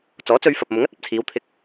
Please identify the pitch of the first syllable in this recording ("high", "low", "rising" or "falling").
rising